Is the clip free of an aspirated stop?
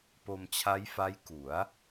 no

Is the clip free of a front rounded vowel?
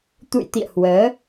yes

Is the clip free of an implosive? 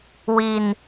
yes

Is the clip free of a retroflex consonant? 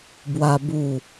yes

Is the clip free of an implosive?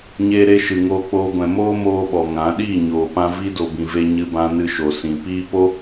no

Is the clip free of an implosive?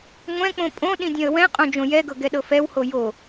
no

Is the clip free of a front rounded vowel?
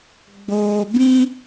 yes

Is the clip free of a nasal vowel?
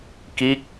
yes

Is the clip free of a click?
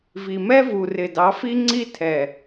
no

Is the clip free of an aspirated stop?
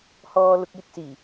yes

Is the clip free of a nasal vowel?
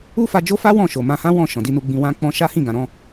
no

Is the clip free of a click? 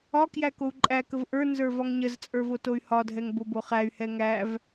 no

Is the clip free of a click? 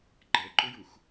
no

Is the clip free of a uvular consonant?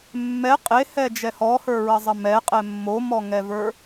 no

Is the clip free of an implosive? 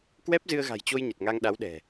no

